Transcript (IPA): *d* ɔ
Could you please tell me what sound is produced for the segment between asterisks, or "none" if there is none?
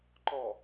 ǃ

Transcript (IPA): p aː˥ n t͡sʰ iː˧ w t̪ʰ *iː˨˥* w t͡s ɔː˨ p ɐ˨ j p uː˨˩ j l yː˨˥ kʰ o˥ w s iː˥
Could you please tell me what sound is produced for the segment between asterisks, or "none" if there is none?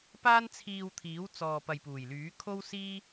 iː˨˥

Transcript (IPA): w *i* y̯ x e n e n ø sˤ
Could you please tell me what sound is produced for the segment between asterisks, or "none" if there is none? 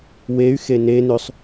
e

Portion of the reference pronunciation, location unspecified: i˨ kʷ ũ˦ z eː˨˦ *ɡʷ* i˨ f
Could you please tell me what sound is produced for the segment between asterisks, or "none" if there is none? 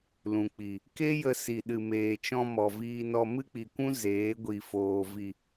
ɡʷ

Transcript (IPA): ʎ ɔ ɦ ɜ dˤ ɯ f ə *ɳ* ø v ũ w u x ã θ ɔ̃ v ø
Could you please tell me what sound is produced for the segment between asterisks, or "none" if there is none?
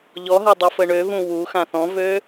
ɳ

